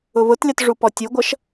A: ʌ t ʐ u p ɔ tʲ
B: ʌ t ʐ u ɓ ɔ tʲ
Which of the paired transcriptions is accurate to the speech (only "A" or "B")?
A